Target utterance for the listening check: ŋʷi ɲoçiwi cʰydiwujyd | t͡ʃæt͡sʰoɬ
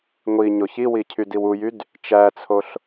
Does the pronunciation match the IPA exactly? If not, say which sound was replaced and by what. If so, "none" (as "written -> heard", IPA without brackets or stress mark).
none